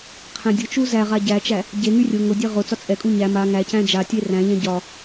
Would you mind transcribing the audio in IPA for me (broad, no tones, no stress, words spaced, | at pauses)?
qʰæ̃dʲʊt͡ʃu zæ ʁaɟæt͡ʃæ | ɟeŋy rʲʊ ŋʊdʲe ʁʊt͡sɒ t͡sʼɛkʼu ɲæ ma ŋæcæ̃ d͡ʒatʲe ræ̃ʎæ̃ ɟɒ